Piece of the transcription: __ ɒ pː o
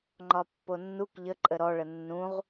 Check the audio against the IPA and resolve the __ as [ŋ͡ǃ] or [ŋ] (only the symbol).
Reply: ŋ͡ǃ